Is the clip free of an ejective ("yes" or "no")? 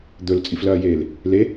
no